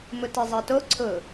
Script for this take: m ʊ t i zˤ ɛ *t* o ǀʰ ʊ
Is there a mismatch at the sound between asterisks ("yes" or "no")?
no